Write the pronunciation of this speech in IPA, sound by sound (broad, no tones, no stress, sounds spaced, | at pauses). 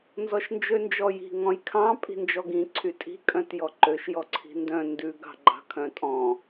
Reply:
n z ɔ ʃ n d͡ʒ ø n d͡ʒ ɔ j i̤ ŋ ɔ̃ j kʰ ɑ̃ pʼ i̤ n d͡ʒ ɔ ɡ ĩ ǀʰ y tʼ i̤ kʼ œ̃ t j ɔ ǃ ø ʃ j ɔ ǀʰ i̤ n d œ̃ n d ʉ ɡ ɑ̤ ɡ͡ǃ ɑ̤ kʰ œ̃ tʼ ɔ̃